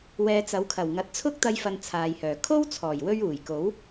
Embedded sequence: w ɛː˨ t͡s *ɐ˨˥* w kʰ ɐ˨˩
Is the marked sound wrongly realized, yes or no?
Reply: no